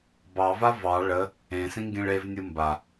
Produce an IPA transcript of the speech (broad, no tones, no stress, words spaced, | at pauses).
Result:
bɑva vɑ ɭə | ẽsĩŋɡĩɭ evnʲɯ mba